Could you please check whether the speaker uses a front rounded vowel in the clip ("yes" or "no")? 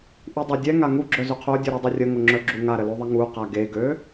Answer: yes